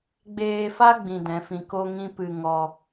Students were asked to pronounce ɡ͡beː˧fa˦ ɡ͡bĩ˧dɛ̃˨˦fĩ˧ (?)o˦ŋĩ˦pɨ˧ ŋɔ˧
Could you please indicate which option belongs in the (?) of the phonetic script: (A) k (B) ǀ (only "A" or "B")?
A